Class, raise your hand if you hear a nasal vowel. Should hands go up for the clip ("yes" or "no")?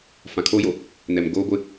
yes